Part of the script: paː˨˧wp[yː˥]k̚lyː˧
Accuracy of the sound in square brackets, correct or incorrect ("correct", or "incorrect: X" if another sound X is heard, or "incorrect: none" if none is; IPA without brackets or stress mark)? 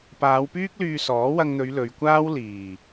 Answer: correct